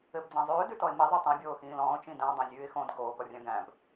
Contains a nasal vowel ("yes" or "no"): yes